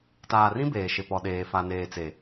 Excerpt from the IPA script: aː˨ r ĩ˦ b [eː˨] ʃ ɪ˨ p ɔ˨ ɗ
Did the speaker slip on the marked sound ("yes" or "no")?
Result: no